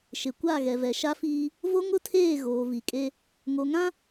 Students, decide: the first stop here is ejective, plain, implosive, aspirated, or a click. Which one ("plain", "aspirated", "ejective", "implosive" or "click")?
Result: plain